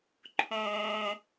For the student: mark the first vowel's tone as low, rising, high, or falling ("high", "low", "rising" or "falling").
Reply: low